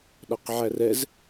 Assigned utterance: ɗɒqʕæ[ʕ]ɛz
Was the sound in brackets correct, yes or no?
no